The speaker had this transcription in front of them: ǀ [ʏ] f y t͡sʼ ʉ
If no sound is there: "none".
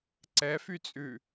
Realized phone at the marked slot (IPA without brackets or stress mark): ɛ